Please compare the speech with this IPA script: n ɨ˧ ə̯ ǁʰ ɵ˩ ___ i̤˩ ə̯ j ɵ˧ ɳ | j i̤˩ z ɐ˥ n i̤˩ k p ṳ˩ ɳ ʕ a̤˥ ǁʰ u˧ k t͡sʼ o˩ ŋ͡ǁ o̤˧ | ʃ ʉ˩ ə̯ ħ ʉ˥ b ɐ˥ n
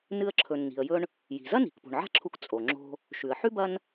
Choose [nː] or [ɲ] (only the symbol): nː